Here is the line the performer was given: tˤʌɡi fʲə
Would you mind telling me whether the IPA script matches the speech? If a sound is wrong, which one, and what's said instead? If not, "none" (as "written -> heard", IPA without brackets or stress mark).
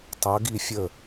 none